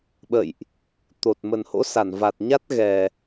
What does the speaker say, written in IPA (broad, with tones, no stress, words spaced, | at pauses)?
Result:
ɓə̰˧˨jʔ | t̪o˨˩t̚ mə˨˩nho̰˧˥sa˧˩n va˨˩t̚ɲa˦˥t̚ ɣɛ˨˩